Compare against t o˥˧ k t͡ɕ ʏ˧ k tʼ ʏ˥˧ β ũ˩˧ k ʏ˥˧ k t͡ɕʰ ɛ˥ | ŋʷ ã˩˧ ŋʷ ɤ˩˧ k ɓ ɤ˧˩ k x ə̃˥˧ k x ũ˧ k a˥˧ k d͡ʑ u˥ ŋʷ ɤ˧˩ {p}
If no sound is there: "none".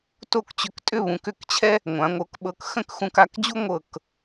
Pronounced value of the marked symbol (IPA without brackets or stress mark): k